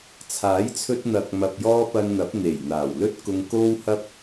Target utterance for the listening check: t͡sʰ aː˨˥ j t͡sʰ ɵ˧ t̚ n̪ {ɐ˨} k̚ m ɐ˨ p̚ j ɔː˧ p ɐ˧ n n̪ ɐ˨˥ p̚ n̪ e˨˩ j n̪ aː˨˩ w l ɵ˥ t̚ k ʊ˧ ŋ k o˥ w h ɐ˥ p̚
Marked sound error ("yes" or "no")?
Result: no